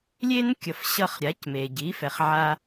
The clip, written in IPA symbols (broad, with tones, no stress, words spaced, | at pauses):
lʲe˥nkʲʌ˩fɕʌ˧χ ɾʲa˩˥cme˩ɟi˩˥ fɛ˩χʕa˧